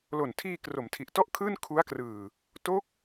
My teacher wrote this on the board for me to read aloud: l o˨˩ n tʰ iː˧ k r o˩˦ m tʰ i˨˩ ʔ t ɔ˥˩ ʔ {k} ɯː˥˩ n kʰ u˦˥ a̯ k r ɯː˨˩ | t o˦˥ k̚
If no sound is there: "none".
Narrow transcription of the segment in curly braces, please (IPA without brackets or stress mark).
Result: kʰ